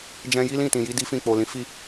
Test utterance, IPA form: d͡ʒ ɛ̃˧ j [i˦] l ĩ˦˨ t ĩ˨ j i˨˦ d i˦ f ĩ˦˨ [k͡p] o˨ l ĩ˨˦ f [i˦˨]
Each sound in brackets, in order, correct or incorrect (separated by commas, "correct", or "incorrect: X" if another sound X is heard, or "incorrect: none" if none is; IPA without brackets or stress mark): correct, correct, correct